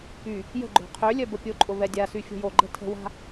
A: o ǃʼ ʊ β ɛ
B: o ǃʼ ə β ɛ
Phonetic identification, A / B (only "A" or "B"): A